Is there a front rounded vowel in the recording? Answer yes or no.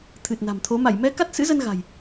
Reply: no